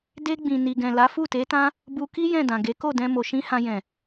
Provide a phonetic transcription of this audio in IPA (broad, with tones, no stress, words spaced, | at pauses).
de˧ɡ͡bĩ˨ ni˨ɡɛ̃˨ la˨˦fu˦˨te˨˦tã˦ | bu˧ki˦ jɛ̃˦˨dã˨ɡe˨˦ ko˦˨dɛ̃˧mo˨ ʃĩ˧ hã˧jɛ̃˨